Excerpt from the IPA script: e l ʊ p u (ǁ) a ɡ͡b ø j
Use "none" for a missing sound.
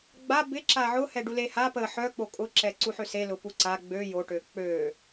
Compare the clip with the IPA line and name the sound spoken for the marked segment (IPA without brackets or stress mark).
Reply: ǀ